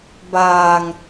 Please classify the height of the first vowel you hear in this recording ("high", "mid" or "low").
low